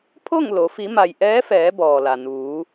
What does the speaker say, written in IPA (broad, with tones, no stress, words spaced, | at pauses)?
pʰo˥˨ŋ lo˩˧ fi˩˧ma˩j ʔɛː˧˥fɛː˩˧ bɔː˩la˩ nuː˩˧